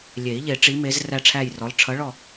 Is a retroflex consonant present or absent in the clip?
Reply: present